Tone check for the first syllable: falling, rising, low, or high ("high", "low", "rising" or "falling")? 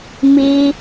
high